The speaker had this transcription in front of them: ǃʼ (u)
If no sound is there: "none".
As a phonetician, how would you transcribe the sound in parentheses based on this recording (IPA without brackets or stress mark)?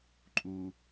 u